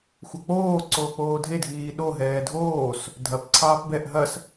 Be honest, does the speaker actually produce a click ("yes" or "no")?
yes